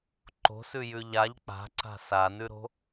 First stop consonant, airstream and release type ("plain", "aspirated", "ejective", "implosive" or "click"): click